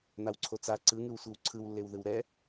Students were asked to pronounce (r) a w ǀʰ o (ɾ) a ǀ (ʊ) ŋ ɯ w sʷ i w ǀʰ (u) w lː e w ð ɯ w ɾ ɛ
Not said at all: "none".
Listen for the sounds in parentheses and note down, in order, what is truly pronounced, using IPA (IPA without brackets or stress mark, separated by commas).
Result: n̪, t͡s, ɯ, ɯ